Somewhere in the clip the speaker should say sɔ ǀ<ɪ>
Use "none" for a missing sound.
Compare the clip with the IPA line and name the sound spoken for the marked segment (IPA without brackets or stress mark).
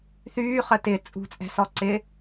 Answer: ɪ